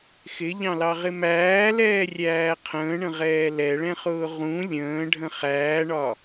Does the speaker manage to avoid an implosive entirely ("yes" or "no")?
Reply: yes